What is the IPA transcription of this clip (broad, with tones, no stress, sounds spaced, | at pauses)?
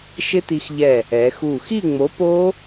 ʃ ɪ˦˥ t i˧ x ʎ ɛ˧˩ | ɛ˩˧ x u˧˩ x i˥˨ ŋ͡m o˨˥ p o˦˥